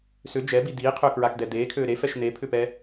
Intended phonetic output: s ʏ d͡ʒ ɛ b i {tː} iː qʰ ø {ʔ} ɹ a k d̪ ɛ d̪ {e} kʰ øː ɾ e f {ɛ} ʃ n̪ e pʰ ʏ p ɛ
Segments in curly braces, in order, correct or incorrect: incorrect: d̪, incorrect: k, incorrect: eː, correct

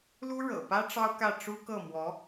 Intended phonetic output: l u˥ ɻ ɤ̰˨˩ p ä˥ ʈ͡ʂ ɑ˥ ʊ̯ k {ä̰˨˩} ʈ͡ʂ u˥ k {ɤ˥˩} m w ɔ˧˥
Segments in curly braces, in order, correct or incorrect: incorrect: ä˥˩, correct

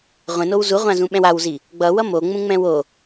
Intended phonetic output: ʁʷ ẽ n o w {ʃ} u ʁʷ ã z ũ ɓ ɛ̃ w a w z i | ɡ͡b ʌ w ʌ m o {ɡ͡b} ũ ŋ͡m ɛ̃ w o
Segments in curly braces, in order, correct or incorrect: incorrect: z, incorrect: ŋ͡m

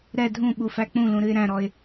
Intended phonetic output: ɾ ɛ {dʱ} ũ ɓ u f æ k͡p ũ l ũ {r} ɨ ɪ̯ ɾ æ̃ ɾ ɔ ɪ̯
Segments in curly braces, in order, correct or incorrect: correct, incorrect: ɾ

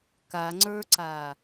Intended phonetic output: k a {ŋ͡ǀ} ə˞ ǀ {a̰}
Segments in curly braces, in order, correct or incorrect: correct, incorrect: a

